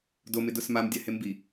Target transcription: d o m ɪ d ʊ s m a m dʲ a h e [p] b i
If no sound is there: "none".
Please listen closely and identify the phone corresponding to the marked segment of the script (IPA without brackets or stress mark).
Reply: m